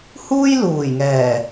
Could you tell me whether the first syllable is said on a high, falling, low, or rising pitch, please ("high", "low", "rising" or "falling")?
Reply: high